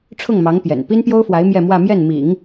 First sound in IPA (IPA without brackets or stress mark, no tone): ʈ͡ʂʰ